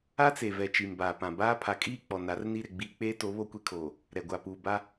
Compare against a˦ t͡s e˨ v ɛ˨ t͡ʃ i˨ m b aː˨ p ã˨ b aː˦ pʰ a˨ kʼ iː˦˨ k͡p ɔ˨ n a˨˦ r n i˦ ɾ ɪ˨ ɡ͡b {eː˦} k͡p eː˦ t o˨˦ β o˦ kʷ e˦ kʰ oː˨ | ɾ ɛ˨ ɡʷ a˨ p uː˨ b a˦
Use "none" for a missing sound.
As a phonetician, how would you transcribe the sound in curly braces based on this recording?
iː˦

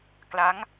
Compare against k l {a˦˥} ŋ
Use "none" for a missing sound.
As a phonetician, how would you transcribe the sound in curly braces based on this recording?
a˦˥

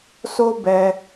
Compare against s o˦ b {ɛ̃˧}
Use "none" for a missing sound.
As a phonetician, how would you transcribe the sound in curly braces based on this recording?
ɛ˧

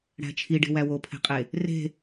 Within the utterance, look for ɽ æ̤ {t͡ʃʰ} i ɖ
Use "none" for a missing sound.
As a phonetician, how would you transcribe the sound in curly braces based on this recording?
t͡ʃʰ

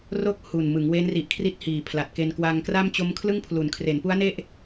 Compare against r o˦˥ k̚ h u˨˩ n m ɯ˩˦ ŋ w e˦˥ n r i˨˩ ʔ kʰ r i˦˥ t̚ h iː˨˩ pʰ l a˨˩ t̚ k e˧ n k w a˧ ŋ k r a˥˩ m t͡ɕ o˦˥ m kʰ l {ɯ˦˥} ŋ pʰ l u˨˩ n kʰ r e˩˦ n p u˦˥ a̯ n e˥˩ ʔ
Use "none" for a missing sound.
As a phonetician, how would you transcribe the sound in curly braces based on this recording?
ɯ˥˩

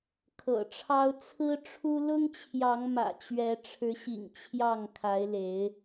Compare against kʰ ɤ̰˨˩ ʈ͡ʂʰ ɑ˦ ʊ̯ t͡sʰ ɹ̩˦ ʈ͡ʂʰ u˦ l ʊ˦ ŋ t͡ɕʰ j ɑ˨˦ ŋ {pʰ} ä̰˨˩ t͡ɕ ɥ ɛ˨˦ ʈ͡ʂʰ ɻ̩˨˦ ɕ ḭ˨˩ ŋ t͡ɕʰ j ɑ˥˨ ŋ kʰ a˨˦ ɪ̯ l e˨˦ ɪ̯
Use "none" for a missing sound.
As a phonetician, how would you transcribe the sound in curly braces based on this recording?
m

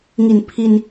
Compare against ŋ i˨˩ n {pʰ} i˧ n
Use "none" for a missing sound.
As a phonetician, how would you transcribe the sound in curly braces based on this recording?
pʰ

